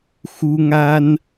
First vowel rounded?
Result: yes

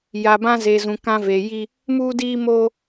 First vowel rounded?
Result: no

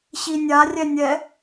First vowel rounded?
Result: no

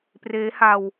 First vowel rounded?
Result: no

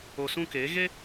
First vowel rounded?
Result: yes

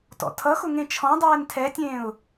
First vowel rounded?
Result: yes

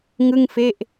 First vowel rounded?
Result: no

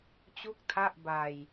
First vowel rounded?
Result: yes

